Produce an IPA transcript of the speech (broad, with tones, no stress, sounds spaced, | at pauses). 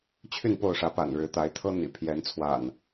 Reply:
t͡ɕʰ y˥˨ n p o˥˨ ʊ̯ ʂ ä˨˦ p a̰˨˩ n ɻ ɻ̩˨˦ t̪ a˨˦ ɪ̯ t̪ʰ ɤ˦ n̪ ḭ˨˩ pʰ j ɛ˨˦ n t͡sʰ w a̰˨˩ n